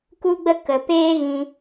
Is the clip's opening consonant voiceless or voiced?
voiceless